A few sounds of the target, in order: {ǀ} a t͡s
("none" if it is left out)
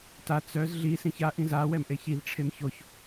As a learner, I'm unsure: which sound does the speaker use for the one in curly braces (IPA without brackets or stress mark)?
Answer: t